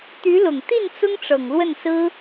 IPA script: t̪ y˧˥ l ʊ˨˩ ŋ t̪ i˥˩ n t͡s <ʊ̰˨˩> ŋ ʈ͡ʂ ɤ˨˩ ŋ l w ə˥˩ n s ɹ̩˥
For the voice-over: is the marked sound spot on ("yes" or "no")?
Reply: no